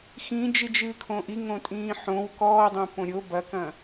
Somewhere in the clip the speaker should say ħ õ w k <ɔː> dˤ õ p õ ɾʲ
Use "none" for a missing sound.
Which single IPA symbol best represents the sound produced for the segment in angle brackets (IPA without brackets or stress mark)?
ɔː